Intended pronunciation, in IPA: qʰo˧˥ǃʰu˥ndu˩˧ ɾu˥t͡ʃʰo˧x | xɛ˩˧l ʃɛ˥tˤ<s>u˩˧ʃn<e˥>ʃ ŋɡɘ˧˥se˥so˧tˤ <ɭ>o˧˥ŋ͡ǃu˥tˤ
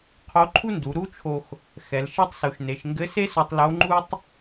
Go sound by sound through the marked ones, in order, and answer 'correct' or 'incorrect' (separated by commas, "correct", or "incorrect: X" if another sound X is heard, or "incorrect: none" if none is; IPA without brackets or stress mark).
correct, incorrect: e˩˧, incorrect: l